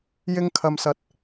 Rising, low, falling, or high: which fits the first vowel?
high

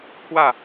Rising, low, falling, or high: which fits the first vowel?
falling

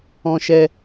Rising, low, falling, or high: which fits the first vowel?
high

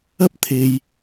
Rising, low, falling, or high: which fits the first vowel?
high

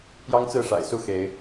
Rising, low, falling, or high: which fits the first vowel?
high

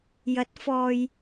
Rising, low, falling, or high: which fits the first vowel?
rising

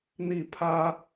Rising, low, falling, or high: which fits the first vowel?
falling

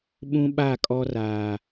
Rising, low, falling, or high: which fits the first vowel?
high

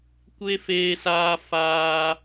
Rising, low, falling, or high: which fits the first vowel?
high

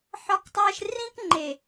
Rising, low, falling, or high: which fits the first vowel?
high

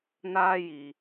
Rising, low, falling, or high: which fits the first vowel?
high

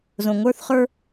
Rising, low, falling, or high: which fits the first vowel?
low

